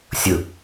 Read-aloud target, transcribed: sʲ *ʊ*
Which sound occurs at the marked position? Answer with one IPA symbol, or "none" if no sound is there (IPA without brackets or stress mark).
ʊ